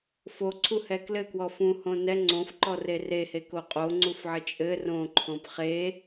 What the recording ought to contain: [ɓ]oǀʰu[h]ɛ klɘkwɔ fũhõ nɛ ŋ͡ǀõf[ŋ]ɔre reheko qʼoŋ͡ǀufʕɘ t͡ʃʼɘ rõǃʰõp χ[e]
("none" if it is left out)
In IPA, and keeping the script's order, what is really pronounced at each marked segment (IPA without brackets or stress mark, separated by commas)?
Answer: f, h, ǃ, e